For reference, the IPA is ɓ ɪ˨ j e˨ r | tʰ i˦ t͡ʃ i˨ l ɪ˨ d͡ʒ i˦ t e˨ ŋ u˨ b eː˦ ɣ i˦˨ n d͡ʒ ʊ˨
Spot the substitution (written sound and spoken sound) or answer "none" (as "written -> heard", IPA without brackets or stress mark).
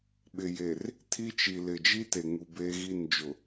none